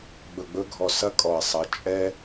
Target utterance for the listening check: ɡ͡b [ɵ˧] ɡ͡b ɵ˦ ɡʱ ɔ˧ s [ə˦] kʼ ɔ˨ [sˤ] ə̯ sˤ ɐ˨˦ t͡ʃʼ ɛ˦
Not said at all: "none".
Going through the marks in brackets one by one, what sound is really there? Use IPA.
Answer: ɵ˧, ɐ˦, none

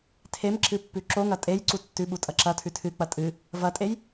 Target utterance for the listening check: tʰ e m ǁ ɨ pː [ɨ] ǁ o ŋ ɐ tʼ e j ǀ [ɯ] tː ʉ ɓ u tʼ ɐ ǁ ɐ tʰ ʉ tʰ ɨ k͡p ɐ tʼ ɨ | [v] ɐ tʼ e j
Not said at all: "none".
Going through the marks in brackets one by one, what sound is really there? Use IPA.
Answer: ʉ, u, v

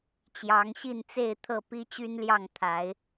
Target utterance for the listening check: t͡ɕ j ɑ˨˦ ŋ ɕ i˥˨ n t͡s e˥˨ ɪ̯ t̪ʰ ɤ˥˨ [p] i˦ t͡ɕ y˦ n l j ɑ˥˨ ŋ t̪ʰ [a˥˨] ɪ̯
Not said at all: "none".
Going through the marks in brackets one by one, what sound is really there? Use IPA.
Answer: p, a˨˦

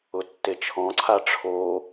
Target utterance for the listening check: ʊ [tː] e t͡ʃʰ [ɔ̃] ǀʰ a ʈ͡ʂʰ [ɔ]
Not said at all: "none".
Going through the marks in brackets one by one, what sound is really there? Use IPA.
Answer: tː, ɔ̃, o

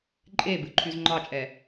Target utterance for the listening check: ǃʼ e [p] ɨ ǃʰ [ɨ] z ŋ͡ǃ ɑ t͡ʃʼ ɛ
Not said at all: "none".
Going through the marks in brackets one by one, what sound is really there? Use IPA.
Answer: b, y

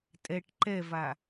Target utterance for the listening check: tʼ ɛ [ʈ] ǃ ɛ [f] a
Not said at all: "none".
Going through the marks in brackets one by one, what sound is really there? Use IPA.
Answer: ʈ, v

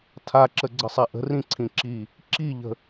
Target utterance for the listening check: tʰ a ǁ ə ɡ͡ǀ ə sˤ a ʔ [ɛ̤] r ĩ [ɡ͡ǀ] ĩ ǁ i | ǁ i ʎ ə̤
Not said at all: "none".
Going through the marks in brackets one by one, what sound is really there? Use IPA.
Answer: ə̤, ǀʰ

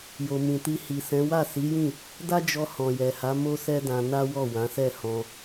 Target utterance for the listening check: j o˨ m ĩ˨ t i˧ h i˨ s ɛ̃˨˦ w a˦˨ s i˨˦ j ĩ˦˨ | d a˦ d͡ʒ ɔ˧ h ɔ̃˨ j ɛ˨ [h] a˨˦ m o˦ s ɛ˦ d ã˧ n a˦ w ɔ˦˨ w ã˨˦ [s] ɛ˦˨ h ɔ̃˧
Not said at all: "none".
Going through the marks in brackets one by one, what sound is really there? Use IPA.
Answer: h, s

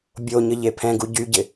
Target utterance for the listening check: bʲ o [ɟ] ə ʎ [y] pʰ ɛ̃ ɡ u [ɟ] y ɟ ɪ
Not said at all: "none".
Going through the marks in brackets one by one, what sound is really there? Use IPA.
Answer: ɲ, e, ɟ

